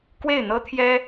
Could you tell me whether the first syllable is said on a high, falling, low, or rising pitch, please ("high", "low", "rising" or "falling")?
falling